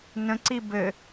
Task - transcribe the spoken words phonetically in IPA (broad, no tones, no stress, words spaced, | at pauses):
nə̃ǀi bɘ